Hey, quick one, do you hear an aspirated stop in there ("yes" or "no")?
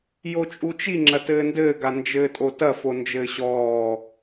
no